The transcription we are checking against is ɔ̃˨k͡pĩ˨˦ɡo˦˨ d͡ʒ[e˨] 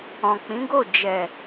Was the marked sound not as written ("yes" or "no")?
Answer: yes